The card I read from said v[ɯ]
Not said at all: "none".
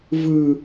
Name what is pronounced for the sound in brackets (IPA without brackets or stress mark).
ɯ